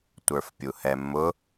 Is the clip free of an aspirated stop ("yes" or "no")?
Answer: yes